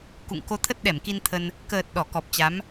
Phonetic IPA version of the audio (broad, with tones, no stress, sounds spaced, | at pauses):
k ṵ˧˨ ŋ k o˧ t̪ʰ ə˦˥ t̚ ɗ ɛ˧˩ m k i˧ n t̪ʰ ə˧ n | k əː˨˩ t̚ ɗ ɔ˧˩ k ɔ˨˩ p̚ t͡ɕ a˨˦ m